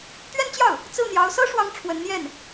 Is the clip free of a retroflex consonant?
no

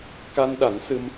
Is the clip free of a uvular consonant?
yes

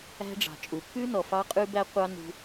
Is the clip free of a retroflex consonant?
no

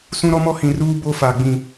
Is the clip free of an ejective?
yes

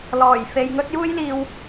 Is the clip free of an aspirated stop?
yes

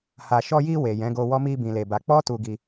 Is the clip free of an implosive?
yes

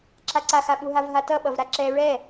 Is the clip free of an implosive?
no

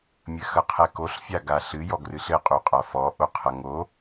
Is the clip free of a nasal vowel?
yes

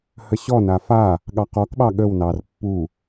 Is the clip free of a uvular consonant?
no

